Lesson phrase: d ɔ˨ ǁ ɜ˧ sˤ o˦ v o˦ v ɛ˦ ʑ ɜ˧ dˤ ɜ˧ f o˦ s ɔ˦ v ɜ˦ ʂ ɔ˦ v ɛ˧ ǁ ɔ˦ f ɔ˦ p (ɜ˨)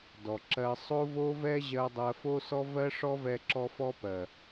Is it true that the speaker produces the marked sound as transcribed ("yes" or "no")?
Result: yes